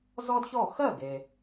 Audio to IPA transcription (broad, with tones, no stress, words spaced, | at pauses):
zɔ˥dçɔ˥˩ xɜ˥˩ɡe˩